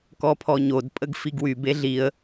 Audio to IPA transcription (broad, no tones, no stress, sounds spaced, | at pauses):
k ɔ pʰ ɔ ɲ o d pʼ ə ɡ f i ɡ w y b e ɮ i ə̯